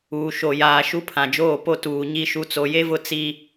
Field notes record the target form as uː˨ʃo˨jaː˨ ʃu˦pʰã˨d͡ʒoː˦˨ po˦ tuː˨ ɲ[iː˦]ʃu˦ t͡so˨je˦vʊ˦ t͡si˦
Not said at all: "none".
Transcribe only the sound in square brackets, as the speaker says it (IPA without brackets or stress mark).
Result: i˦